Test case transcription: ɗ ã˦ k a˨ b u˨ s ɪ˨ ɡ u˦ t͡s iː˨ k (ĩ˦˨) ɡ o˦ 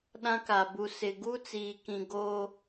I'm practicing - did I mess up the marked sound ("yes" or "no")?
yes